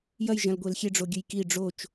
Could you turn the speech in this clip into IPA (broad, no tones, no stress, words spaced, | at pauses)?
jɐj ʒɐ̃lɡʷelxʲe ɖ͡ʐoɡʲɨjki ɖ͡ʐot͡ʃ